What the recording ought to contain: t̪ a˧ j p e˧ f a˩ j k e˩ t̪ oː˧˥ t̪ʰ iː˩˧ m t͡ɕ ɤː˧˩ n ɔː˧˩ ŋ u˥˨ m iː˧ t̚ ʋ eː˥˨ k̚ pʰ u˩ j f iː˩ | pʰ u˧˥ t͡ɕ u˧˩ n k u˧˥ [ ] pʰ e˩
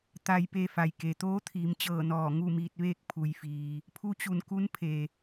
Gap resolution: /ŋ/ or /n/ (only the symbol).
n